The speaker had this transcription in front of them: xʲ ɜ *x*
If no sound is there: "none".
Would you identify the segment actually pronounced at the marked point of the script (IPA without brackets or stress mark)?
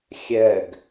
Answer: ɡ